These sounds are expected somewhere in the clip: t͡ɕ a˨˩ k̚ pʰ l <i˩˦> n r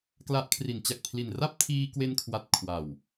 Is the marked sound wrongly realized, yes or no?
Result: yes